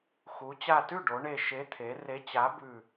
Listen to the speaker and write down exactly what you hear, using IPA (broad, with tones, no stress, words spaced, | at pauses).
xu˩˧t͡ɕa˧˩ tʉ˥˩ɖo˩˧ ɳe˧˩ʃe˨˥ t̪ʰe˩˧ re˨˥t͡ɕa˨˥bʉ˧˩